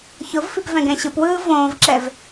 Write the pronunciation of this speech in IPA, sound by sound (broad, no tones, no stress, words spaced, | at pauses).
çʊvfip vɛ̃ɡɛ̃ɕɯpwɯː võːvǁɛv